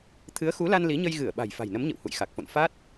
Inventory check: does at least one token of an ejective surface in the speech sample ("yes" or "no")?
no